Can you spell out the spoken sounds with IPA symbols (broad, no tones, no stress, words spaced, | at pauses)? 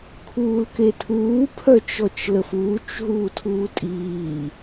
kʰuːlketʰuː pʰœt͡ʃɔt͡ʃləfuːt͡ʃ ɦuːtʰuːtʼiː